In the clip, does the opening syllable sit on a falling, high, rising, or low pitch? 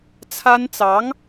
high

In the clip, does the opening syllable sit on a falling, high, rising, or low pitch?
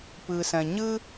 low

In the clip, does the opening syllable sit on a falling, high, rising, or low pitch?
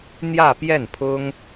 falling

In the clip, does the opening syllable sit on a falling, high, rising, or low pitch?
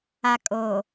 low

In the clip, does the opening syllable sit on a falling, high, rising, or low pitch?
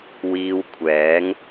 high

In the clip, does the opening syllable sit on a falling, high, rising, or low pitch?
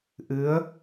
rising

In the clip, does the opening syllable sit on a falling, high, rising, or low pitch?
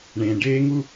low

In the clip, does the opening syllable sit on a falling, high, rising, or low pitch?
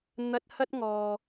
high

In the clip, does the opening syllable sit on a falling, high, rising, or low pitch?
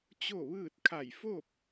falling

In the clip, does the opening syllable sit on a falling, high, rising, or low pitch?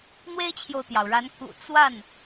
high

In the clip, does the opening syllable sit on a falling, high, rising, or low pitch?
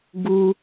high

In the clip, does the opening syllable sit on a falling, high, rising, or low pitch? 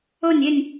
falling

